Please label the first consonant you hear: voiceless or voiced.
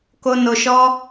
voiceless